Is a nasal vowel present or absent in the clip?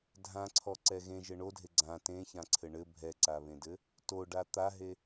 present